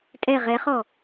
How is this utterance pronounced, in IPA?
tʼ ɛ ʁ ɛ χ ɔ

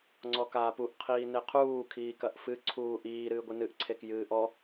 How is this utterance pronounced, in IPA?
ŋ͡ǀ ɔ k aː p u ʔ qʰ iː n e qʰ uː kʰ iː k ɐ ʔ f ɨ ǀʰ uː ʔ iː ɾ ɨː ɡʷ ɨ n ɨ ʔ ǀʰ e k j ɨː ʔ ɔ

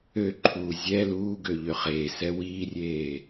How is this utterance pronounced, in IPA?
ø ǃʰ uː zʲ ɛ l uː ɡ ø ʎ ø χ eː s ɛ w iː rʲ eː

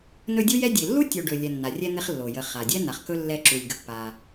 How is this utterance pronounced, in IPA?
n ɵ˦ dʲ u˥ j ɛ˥ dʲ e˨ lː u˥ tʲ o˨ ɖ ɵ˨ lʲ ɛ˨ nː a˩ rʲ ɛ˥ n̪ e˦ χ lː o˩ j ə˨ χ a˩ dʲ ɛ˥ n a˩ χ k ɵ˥ lː ɛ˦ ǁ u˩ lʲ ɡ ə˨ pː a˩

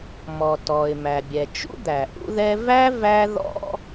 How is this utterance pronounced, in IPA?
m ɔ˩ t ɔ˩ ɪ̯ m æ˩ bʲ ɛ˩ t͡ʃ ṵ˥ d̪ æ˩ ʔ ṵ˥ ð ɛ˥ v æ˥ v æ˥ ð ɔ̰˥

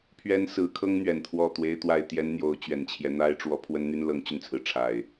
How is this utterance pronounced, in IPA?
pʰ ɥ ɛ˦ n s ɹ̩˨˦ kʰ ɤ˦ ŋ n̪ ɥ ɛ˨˩ n t̪ʰ w ɔ˥˨ t̪ w e˦ ɪ̯ t̪ w a˥˨ ɪ̯ t̪ j ɛ˦ n n̪ j o˨˦ ʊ̯ t͡ɕ ɥ ɛ˨˩ n t͡ɕʰ j ɛ˦ n̪ a˦ ɪ̯ ʈ͡ʂ w ɔ˨˦ pʰ w ə˦ n n̪ y˦ n l ɤ˨˦ ŋ t͡ɕ y˧ n t͡sʰ ɹ̩˩ ʈ͡ʂʰ a˨˩ ɪ̯

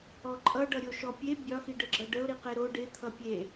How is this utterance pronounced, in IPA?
ɔ ǃʼ ʌ ɖ ʌ ɾʲ o ʃ ɔ pʲ e bʲ ɒ x i ɖ ə ɡ͡ǁ ʌ ɖ ə ʊ̯ ɾ i q e ɾ o ɖ ɪ t̪ʰ ʌ pʲ e

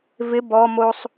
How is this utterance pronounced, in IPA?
v ɪ b ɔ m o sˤ

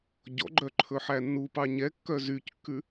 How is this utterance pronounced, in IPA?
ɟ ɔ̰ ɡ͡ǃ œ ǃʰ ɵ ħ æ nː u p ɑ ɲ ɛ kː œ z y c kː ʉ

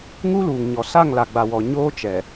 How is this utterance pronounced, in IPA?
ŋ u˦ l uː˨ ŋ ɲ ɔ˨ s a˦˨ ŋ l a˨ ɡ͡b a˨ w ɔ˨ ɲ oː˦ t͡ʃ ɛ˨

